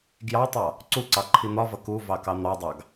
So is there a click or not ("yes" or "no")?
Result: yes